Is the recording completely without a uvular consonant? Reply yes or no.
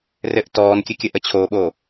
yes